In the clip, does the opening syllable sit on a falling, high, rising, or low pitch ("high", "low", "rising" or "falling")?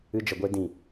high